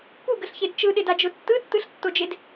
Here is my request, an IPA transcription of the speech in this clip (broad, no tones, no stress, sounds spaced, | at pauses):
p u ɡ ə ɬ ç e d t͡ʃ ɯ ɗ ɪ d a d͡ʒ ʊ tː ɯ tː ɯ ɬ tː o d͡ʒ e d